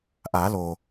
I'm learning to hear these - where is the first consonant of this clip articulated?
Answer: throat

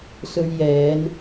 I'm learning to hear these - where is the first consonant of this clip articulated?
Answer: tongue tip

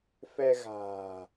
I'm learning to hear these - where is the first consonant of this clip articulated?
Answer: lips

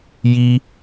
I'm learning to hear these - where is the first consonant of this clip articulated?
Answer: palate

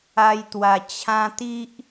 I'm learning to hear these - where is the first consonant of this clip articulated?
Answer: palate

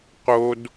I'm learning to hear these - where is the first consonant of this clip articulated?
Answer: uvula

